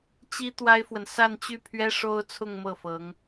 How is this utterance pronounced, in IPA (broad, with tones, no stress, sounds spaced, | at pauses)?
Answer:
t͡ɕ i˥ t̪ w a˥ ɪ̯ f w ə˨ n s a˥˧ n t͡ɕ y˥˩ pʰ ɥ ɛ˥ ʂ o˥ ʊ̯ t͡sʰ ʊ˥˧ ŋ m ɤ˥˩ f ɤ˧˥ ŋ